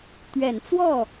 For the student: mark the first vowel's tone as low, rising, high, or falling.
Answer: low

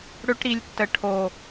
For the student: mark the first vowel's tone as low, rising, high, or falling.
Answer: high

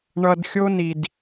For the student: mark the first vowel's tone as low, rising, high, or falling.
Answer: low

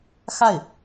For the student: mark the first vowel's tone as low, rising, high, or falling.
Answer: falling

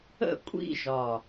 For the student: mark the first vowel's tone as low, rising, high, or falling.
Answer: falling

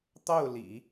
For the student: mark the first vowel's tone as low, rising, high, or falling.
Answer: falling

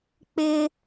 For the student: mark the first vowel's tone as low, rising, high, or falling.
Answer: high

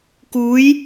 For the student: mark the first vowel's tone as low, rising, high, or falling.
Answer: rising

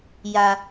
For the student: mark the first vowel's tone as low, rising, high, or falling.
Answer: low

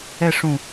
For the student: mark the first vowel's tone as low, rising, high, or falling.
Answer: falling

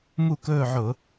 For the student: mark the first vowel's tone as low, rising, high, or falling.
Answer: falling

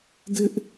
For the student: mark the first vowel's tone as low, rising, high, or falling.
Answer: high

